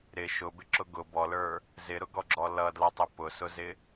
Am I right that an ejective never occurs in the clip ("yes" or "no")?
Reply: yes